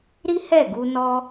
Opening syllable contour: high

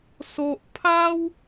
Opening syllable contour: high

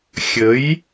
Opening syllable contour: rising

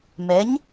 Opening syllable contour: rising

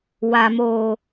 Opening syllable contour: low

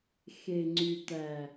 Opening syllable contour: low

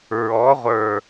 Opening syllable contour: rising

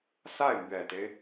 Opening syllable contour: falling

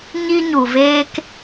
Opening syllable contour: high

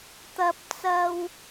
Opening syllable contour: high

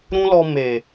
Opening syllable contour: high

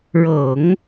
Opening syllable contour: low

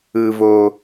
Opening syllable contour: low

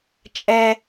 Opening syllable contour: high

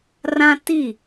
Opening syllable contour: high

